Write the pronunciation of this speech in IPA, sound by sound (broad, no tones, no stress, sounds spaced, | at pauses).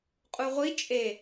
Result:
qʼ u ʁʷ i t͡ʃʼ e